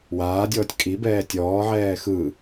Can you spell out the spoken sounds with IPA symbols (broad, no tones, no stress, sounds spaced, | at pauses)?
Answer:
w aː dʲ ɔː tʲ kʼ i b ɛː tʲ ɔː ʕ ɛː x ɯ